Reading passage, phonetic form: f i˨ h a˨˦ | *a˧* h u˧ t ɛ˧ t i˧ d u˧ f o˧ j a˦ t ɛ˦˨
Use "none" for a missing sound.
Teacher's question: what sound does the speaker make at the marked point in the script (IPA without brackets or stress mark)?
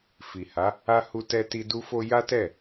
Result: a˧